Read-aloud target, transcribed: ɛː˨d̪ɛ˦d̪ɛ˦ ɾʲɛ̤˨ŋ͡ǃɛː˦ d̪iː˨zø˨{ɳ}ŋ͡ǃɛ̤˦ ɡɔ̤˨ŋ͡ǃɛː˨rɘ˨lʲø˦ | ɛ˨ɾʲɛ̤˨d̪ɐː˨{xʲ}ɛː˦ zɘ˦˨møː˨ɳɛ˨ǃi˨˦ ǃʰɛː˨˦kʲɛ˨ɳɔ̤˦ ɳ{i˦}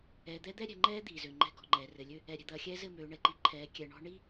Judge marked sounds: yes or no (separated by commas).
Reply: no, yes, yes